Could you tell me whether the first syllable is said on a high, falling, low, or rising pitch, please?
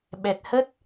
low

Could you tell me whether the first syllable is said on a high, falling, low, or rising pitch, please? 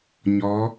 rising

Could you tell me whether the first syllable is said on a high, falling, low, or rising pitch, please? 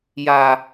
high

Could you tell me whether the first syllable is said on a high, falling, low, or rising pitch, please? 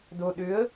low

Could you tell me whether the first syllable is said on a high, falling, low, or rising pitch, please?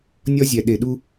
high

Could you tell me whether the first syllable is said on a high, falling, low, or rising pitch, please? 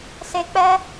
low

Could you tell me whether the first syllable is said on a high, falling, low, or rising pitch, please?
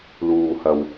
low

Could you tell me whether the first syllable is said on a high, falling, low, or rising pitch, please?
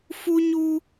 high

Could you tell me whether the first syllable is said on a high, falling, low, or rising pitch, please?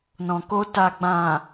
low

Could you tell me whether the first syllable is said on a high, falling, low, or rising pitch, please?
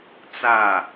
falling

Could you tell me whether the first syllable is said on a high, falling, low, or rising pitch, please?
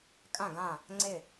falling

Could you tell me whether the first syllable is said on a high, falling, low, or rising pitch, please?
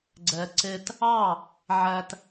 low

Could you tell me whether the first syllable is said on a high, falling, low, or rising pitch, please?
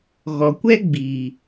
low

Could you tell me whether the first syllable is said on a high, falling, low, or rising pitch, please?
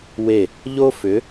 falling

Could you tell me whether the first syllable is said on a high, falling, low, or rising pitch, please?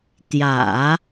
low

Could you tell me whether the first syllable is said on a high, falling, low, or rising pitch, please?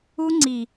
high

